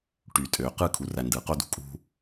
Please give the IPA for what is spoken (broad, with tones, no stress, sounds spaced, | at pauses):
ʈ y˨ tʼ øː˨ q ɯ˦˨ kʰ u˨ r æ˨ n d ɯː˨ q o˦ d ṳ˨ kʼ ṳ˦